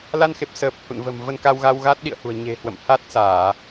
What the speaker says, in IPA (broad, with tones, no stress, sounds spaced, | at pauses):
l a˧ n x e˨˩ p̚ s əː˨˩ p̚ h ṵ˧˨ n v ə̤˨˩ m v ə˧ n k a˧ w ɣ a˧ w ɣ a˦˥ t̚ ɗ ḭ˧˨ ə̯ h ṳ˨˩ ə̯ ɲ e̤˨˩ h w ə̰˧˨ m h a˦˥ t̚ s aː˧˩˨